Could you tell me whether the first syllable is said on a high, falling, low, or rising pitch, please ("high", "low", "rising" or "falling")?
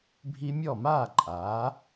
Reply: high